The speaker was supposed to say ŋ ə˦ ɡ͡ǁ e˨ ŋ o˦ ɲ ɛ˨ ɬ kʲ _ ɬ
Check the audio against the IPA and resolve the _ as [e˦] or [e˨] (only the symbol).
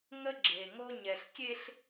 e˦